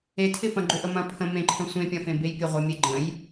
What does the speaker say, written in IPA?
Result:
e tʰ ɪ f ɐ̃ ɡ͡ǃ ʏ ʔ ə m ɐ̃ pʰ ə̃ m ẽ ǃʰ ə̃ sʷ ẽ pʲ ɐ̃ f ẽ b e j pʲ ə ʁʷ ə mʲ e ɡ͡ǃ ə̃ j

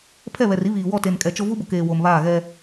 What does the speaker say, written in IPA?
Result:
pʰ ɛ˦˨ β ɛ˨ r i˦ β iː˨ w ɔ˦˨ t e˨ n kʼ ɛ˨ t͡ʃ o˦ v u˦ b ʊ˨ k eː˨ w o˨ m β aː˦˨ ɣ ɛ˦

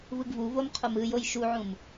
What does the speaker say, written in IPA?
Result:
v ɯ ɡ v u v o m qʰ o m ɯ j o j ʃ u ʕ ũ m

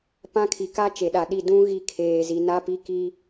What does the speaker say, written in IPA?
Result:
p ã˦ kʰ i˨ k a˦ t͡ʃ e˨ ɗ a˨ ɗ i˦˨ d ũ˦ ɣ i˦ kʰ eː˨ z i˨ n a˦ p i˦ k i˦

